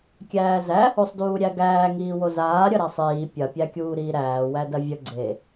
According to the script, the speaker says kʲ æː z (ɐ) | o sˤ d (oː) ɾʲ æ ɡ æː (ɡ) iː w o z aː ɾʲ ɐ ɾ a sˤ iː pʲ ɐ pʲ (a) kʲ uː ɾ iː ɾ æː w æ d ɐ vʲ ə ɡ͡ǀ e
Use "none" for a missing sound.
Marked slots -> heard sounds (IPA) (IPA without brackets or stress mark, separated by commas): æ, uː, ŋ, æ